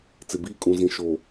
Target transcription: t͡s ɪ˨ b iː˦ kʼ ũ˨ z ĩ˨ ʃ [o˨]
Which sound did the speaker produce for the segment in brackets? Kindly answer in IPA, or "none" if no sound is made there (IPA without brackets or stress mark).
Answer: o˨